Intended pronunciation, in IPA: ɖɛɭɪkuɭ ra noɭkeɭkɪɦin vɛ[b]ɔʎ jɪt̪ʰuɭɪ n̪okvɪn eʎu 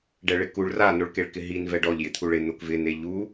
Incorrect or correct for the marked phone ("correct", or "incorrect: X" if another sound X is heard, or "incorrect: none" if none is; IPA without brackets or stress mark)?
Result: incorrect: ɖ